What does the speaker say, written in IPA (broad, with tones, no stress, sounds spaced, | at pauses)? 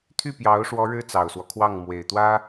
t̪ʰ y˥˩ p j ɑ˧˥ ʊ̯ ʂ w ɔ˧˥ ɻ ɻ̩˥ t͡s ɑ˨˩ ʊ̯ s w ɔ˦ kʰ w ɑ˥˩ ŋ m w e˨˩ ɪ̯ t̪ w ä˥